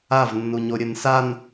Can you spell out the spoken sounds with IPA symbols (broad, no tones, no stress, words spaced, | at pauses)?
avnːuɲo ɾʲɘnsan